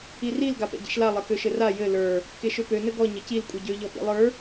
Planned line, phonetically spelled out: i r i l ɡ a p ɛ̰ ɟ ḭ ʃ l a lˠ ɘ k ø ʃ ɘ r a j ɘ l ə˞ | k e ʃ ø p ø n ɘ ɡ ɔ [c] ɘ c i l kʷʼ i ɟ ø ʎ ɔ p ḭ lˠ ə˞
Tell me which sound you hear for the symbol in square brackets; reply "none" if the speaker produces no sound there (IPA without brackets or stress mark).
ɲ